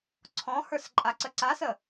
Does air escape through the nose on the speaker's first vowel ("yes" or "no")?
yes